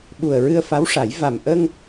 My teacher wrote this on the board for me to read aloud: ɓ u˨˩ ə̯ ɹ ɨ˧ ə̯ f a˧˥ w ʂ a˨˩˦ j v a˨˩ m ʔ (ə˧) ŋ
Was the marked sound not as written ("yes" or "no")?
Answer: no